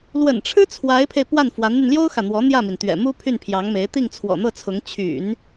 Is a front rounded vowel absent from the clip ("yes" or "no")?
no